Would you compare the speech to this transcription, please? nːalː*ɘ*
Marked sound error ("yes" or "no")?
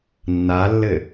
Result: no